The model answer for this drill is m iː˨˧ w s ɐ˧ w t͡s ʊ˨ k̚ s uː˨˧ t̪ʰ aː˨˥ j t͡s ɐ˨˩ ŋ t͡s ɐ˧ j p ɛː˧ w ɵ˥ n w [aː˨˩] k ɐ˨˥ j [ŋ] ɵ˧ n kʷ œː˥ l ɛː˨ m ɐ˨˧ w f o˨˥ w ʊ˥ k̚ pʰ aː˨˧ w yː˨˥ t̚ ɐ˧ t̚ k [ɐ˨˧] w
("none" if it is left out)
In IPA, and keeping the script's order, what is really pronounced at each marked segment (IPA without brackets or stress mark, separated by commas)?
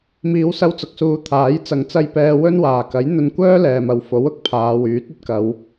aː˨˩, n̪, ɐ˨˧